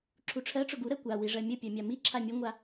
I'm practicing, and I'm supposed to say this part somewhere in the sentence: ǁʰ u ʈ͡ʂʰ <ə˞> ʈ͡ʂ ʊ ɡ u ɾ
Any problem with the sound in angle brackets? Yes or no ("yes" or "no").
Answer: yes